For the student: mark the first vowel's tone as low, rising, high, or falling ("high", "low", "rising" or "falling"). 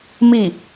falling